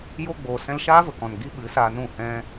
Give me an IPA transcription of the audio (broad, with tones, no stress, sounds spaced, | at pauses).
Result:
j o˧ ɡ͡b oː˨ s ɛ̃˧ l ʃ aː˦ v ə˨ k ɔ̃˨ n ɡ i˦ ɓ ɨ˨˦ s aː˧ n ũ˦˨ h ɛ̃˦